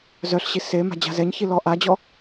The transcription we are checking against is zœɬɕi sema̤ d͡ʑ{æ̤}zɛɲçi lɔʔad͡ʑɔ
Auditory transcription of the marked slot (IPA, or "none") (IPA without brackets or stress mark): a̤